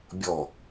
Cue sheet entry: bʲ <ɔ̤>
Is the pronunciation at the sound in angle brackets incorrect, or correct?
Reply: incorrect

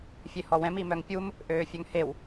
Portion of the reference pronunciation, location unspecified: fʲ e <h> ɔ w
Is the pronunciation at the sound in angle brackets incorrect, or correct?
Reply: correct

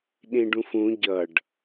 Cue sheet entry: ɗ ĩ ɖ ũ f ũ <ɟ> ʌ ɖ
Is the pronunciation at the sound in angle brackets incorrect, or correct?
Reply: correct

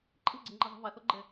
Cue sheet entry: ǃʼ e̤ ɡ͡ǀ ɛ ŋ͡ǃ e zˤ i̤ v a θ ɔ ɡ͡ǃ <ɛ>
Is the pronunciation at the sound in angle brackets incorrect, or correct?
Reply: correct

